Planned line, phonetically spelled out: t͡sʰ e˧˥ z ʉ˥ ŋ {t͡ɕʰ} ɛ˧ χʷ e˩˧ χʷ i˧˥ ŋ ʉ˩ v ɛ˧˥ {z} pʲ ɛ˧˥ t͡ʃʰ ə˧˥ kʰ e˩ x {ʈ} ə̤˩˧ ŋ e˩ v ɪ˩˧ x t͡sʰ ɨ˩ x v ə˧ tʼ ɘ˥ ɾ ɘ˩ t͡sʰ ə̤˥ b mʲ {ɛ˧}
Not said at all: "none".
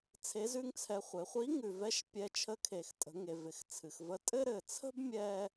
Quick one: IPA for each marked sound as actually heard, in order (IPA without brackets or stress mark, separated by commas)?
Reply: t͡sʰ, ʃ, tʼ, ɛ˧